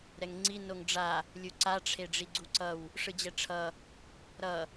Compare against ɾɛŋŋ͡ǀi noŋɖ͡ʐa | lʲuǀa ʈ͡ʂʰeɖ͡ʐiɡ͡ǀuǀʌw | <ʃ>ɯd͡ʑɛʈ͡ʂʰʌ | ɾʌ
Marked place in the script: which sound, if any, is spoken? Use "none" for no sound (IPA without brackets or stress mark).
ʂ